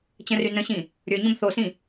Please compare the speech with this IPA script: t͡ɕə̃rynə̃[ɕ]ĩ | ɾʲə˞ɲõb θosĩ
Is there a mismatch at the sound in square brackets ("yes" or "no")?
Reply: no